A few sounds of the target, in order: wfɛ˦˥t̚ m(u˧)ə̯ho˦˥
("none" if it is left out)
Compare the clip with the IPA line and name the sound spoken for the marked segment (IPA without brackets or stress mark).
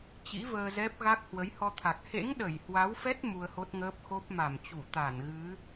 u˧